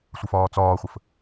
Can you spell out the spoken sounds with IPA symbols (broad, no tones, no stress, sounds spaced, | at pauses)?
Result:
sʷ ə f ɒː t͡s ɒː χʷ ə f